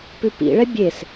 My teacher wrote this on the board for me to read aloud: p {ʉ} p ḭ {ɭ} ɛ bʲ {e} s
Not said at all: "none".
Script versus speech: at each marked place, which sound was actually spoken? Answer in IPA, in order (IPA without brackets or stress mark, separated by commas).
ʉ, ɭ, e